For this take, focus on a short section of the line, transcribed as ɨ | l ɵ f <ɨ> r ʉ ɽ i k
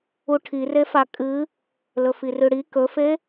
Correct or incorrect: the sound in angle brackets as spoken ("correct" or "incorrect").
incorrect